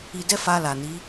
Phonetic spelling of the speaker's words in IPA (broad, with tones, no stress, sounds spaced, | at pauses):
i˨ d ɛ˧ f a˧ l a˨ n i˨˦